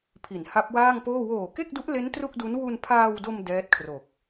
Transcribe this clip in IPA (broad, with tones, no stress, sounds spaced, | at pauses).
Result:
pʰ i˩˦ n h a˦˥ p̚ w aː˥˩ ŋ p oː˥˩ w oː˨˩ k e˥˩ k̚ d u˦˥ ʔ l e˦˥ n t r u˥˩ k̚ d u˦˥ n w u˧ n pʰ aː˧ w d o˧ m d ɛː˦˥ t̚ kʰ r o˨˩ k̚